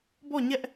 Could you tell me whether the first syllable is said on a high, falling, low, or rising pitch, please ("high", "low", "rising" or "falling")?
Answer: falling